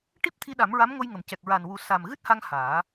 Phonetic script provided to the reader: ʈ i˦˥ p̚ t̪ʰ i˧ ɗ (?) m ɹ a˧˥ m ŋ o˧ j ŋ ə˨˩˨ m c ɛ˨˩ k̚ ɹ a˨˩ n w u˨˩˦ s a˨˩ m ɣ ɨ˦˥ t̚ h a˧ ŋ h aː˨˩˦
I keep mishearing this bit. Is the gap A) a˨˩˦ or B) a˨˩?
A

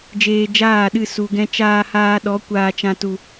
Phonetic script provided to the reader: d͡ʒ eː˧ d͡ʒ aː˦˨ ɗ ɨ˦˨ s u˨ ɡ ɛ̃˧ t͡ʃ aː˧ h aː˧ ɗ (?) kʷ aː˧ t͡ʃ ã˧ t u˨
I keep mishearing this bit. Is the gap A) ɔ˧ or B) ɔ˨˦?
B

